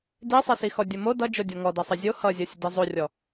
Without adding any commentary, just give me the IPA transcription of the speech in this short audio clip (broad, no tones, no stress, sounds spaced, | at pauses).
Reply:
d i sˤ i s i x ɔ dʲ o m o d ʌ d͡ʒ o dʲ ɔ ŋ ɔ d ʌ sˤ ʌ zʲ o h ʌ zʲ ɔ sʲ ʌ d i zˤ o rʲ ɔ